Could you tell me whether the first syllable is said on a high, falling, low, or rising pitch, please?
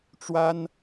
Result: high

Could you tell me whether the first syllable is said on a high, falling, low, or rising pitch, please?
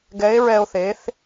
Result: rising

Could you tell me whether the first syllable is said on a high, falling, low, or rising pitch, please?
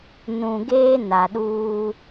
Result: low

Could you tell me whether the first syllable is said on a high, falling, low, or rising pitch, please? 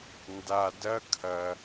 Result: low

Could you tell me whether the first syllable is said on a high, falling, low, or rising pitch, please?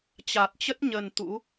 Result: low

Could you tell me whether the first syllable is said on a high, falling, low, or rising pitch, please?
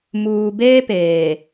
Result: low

